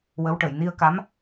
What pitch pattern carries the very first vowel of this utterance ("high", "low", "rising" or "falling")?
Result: rising